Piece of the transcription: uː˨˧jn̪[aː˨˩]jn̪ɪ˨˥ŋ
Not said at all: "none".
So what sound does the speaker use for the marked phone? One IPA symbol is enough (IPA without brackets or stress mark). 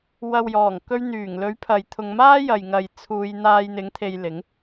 aː˧